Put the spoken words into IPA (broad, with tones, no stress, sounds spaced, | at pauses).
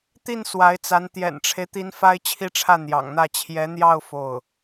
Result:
t̪ i˥˩ n s w a˧˥ ɪ̯ t͡s a˧˥ n t̪ j ɛ̰˨˩ n ʈ͡ʂʰ e˦ ɪ̯ t̪ i˧˥ n f a˥ ɪ̯ t͡ɕʰ i˥˧ ʈ͡ʂʰ ä˥˩ n̪ j ɑ̰˨˩ ŋ n̪ ä˥˩ t͡ɕʰ j ɛ˧˥ n̪ j ɑ˥˧ ʊ̯ f o˥˩ ʊ̯